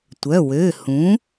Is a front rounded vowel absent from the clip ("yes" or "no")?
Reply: no